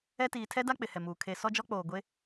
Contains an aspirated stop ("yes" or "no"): yes